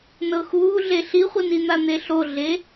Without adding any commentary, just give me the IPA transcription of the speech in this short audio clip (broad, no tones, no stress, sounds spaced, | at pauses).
n ɤ x uː ɮ e ɬ i χʷ ɯ n i n̪ a n̪ e ɬ o ɮ e